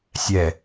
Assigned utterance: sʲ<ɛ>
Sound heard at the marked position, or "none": ɛ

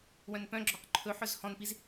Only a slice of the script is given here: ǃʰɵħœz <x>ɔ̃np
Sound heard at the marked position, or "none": h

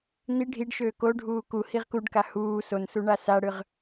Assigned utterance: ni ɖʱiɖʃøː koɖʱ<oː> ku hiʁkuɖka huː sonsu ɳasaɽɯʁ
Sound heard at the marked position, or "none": uː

